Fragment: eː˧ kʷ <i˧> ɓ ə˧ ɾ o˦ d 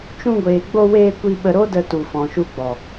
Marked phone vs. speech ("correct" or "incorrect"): correct